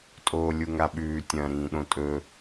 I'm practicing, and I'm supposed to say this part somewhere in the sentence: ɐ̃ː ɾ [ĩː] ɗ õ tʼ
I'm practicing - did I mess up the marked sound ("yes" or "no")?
no